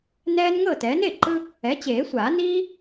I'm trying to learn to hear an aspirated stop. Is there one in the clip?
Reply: no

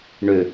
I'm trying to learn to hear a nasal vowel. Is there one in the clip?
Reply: no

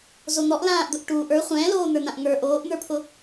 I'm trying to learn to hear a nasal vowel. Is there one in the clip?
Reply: yes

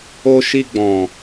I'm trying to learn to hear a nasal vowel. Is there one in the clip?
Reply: yes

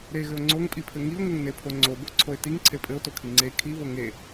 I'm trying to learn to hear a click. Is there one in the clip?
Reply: yes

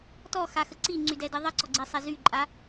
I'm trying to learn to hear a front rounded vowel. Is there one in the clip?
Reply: yes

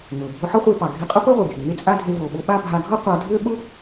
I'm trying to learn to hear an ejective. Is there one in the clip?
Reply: yes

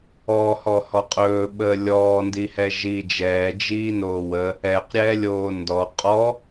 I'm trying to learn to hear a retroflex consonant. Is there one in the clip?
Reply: no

